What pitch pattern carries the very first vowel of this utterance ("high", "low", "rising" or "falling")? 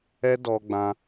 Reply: high